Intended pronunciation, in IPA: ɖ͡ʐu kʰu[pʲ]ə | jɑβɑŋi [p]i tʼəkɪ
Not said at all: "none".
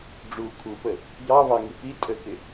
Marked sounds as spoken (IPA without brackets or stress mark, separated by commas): p, p